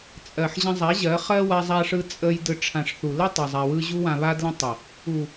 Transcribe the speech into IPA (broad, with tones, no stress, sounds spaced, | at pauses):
t͡sʼ ɜ˨ ħ ʑ ə̃˧ zˤ a˨˦ ʑ ɜ˨˦ χ ɜ˦ w a˧ zˤ a˧ ʂ ɯ˧ t͡sʼ ə˧ j d ɯ˨ ʈ͡ʂʰ ã˨ ʂ θ u˨ l ə˦ tˤ ɜ˨ zˤ a˧ w ɯ˦ ʑ u˧ w ã˨ β a˧ d l ə̃˧ tˤ ə˨ | u˨